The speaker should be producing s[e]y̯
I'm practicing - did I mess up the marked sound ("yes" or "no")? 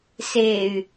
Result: no